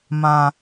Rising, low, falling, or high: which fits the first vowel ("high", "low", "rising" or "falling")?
low